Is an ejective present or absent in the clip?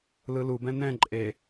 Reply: present